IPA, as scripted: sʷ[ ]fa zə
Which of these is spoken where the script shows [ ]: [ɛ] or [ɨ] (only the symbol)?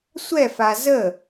ɛ